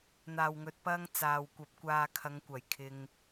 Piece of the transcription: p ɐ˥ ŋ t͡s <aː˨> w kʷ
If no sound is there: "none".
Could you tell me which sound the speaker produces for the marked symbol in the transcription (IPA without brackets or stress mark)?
aː˨